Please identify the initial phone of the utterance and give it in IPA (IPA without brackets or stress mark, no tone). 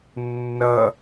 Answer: nː